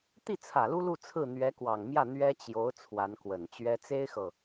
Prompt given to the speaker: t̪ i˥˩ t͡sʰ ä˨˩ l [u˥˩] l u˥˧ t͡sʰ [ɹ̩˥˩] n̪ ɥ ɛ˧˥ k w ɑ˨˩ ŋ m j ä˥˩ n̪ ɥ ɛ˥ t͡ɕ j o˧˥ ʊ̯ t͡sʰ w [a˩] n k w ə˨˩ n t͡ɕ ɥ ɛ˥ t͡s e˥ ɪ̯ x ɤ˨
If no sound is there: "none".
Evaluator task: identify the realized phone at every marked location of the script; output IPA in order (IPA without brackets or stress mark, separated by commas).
u˥, ɹ̩˥˩, a˧˥